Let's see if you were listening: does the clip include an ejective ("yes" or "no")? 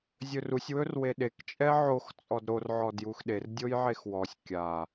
yes